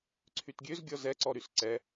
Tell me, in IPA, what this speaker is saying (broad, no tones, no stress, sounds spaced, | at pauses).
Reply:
ǀʰ y t ɡʲ ø z ɡʲ ɔ z ɛ ǀ ɔ ɾ y s ǀ ɛ